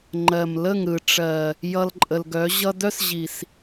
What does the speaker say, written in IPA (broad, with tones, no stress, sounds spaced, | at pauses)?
ŋ͡ǃ ɜ˨ m l ə˦˨ ŋ ɾ ɯ˨ ʈ͡ʂ ɜ˨ | j ʌ˧ l ǃʼ ə˨ l ɡ œ˨˦ ʑ ʌ˧ d œ˦ s ʑ i˨ s